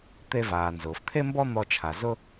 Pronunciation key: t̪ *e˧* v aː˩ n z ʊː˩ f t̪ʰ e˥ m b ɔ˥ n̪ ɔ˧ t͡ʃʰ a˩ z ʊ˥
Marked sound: correct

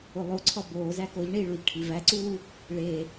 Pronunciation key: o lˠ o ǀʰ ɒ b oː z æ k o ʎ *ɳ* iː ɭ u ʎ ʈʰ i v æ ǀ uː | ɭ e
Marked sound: correct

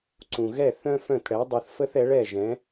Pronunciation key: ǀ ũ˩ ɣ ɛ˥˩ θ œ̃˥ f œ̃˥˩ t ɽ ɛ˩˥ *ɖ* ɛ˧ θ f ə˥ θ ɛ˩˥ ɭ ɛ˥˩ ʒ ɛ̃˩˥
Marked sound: incorrect: dˤ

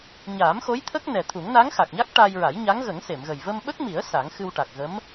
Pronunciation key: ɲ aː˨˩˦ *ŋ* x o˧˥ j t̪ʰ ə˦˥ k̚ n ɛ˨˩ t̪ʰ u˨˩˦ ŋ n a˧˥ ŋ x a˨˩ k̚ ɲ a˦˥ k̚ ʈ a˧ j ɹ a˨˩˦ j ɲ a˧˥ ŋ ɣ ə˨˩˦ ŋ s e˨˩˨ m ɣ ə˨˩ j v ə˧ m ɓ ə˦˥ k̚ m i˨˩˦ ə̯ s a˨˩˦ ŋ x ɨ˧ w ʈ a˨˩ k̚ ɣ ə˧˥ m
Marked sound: incorrect: m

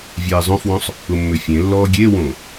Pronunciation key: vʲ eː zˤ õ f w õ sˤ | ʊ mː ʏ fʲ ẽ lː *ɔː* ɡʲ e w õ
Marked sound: correct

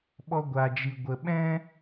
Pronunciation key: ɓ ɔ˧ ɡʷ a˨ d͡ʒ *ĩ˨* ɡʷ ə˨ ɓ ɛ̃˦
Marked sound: incorrect: i˨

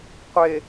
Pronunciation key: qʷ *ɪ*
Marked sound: correct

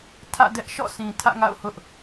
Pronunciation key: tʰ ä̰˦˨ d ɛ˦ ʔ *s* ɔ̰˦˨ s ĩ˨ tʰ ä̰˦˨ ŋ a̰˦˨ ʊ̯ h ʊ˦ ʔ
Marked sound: incorrect: ʃ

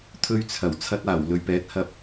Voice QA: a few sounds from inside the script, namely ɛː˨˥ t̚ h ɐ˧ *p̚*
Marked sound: correct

